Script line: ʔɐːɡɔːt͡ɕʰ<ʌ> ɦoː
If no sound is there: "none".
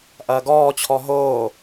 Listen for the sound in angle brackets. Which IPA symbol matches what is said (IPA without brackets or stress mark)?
ɔ